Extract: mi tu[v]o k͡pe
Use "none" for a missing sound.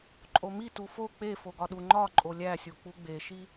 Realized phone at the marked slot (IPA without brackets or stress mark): f